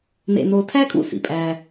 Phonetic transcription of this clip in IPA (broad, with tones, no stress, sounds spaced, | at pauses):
n ḛ˧ n o˧ tʰ æ˥ kʼ ṵ˧ s ḭ˩ pʼ æ˧